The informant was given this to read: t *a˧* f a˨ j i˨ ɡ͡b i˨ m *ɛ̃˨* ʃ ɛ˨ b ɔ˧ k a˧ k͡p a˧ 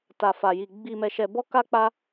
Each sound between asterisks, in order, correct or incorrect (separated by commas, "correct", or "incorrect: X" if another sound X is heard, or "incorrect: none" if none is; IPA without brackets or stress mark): incorrect: a˨, incorrect: ɛ˨